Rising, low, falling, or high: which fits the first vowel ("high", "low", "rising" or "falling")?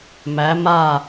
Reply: rising